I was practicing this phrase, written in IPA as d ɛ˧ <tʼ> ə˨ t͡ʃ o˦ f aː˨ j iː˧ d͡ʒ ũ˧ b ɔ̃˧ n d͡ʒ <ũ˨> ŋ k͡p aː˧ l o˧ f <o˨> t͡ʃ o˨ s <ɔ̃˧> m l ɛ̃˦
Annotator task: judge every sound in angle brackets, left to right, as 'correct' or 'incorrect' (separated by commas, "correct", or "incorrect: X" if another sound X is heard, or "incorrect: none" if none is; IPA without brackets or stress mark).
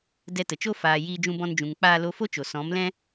incorrect: t, correct, incorrect: o˦, incorrect: ɔ̃˨˦